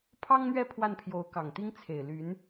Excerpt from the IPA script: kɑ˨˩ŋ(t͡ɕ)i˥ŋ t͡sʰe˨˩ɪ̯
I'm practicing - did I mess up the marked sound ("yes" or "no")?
yes